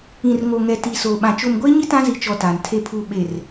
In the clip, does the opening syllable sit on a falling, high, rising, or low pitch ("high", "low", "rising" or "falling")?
low